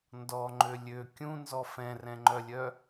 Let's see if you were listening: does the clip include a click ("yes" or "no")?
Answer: yes